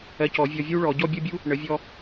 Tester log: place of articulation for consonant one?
palatal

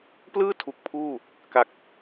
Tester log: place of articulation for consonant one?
labial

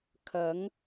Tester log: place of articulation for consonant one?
velar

